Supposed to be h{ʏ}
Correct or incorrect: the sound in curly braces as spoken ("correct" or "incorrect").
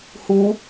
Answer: incorrect